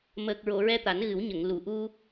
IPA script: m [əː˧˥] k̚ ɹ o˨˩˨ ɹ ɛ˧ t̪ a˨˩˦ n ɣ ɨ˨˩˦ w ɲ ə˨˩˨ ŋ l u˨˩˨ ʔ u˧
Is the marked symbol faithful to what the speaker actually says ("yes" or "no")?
no